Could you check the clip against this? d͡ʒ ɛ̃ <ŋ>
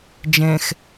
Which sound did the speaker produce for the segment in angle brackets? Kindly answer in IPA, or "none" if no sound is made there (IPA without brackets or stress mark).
x